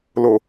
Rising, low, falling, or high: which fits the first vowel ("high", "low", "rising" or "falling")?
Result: low